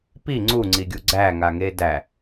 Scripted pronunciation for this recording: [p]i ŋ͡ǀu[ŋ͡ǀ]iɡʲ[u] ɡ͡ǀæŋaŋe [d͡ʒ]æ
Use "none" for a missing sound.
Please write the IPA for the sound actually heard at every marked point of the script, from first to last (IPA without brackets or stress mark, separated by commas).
p, ŋ͡ǀ, u, d